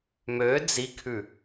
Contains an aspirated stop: yes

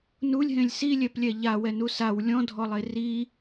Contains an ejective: no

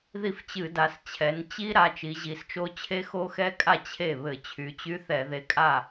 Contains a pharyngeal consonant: no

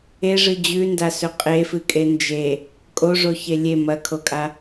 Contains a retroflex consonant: yes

